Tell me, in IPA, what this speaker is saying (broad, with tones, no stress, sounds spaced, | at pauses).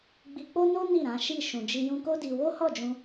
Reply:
ɡ͡b i˧ k͡p o˦ n o˦ n i˦˨ ɾ ã˨˦ ʃ i˦˨ ʃ ũ˧ d͡ʒ i˦ j ũ˦ k o˦ d i˧ w o˦ h ɔ˦˨ d͡ʒ ũ˧